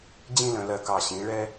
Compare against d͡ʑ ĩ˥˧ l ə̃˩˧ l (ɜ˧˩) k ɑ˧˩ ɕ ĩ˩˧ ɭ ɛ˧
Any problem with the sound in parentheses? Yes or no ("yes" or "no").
no